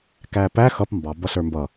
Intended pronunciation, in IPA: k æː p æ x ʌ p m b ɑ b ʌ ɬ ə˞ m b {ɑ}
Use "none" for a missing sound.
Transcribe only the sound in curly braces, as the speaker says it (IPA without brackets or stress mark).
ʌ